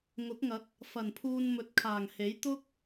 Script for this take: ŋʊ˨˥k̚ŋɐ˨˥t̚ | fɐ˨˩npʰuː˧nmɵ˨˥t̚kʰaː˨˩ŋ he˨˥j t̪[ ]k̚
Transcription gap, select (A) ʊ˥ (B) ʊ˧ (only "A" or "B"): A